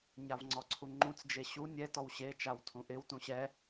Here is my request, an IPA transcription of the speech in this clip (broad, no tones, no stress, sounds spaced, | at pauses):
ɲ a v ŋ͡ǀ ɔ ǀʰ u ŋ͡ǃ ũ t͡s d͡ʒ e ɕ u nʲ ɛ t ɔ w ɕ e t͡ʃ a w tʰ ũ ʔ ɪ w t ũ ɕ ɛ